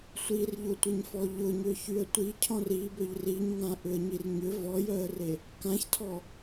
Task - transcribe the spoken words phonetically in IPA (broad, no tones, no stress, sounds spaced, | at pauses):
sʷ i r ʎ ʊ tʷ ɪ ɲ f ɔ ʎ ʊ ɲ ø ç y ə̯ tʷ i cʰ ɔ̃ r i b ø ʎ r i ɲ ŋ ã ʔ ʏ ə̯ ɲ i r ɲ ʏ v ɔ j œ ə̯ r e | k ã ç tʰ ɔ